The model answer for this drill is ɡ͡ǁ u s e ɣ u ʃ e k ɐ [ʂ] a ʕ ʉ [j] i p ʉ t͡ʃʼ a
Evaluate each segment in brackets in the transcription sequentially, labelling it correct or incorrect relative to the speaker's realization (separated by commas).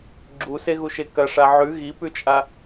correct, incorrect